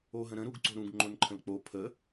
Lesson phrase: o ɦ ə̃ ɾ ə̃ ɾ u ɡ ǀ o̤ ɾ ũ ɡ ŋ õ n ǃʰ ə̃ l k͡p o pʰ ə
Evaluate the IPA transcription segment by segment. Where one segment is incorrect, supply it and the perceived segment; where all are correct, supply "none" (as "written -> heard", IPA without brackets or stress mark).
ŋ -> ŋ͡ǃ